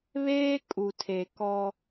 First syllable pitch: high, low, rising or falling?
high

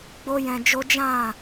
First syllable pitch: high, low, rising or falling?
high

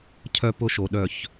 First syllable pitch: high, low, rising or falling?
high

